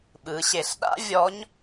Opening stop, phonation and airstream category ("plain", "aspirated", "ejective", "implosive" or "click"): implosive